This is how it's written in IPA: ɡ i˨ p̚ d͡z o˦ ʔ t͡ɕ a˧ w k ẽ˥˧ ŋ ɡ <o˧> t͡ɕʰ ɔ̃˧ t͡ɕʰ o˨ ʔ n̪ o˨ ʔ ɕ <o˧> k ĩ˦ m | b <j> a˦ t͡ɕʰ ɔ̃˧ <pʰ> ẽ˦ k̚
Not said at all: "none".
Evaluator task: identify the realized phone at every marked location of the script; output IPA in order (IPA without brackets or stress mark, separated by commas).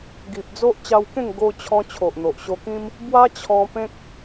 o˧, o˧, w, p